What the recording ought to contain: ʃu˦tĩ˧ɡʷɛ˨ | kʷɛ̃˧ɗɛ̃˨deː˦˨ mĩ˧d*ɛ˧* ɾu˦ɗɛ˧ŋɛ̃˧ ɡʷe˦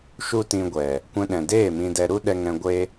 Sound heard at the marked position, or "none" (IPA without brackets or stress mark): ɛ˧